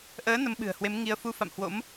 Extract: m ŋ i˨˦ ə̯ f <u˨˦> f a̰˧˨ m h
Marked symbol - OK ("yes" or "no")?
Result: no